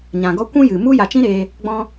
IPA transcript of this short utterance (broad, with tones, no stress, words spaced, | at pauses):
ɲã˨ɡɔ˦ kʷũ˦jɨ˨ mu˦ja˧t͡ʃĩ˦ɾeː˧ | ɡ͡bɔ̃˧